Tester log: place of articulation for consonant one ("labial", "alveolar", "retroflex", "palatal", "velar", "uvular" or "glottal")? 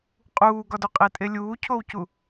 uvular